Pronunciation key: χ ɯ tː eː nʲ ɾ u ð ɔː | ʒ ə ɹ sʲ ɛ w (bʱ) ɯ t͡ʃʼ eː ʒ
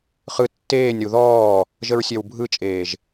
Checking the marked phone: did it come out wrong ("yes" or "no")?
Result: no